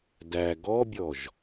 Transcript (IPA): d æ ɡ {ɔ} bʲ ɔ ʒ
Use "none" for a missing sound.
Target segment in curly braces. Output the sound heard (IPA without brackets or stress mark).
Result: ɔ